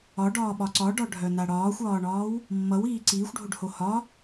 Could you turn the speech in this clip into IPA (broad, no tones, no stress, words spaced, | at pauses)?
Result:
ɒɖɒːɓɒ ǀɒɖɒɖʱœna ɽɒːxʷɒːɳɒːw | mːʌwiː ǀiːxʷɖʱoɖho hɒ